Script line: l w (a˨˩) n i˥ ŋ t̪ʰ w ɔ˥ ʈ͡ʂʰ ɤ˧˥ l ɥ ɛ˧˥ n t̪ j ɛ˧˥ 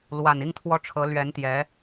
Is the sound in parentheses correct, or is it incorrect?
correct